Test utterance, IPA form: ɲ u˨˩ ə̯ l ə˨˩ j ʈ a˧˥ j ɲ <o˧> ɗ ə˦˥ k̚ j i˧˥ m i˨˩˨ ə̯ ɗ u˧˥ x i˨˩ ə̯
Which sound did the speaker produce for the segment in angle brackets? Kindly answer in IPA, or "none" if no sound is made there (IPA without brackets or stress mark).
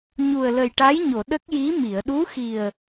o˨˩˨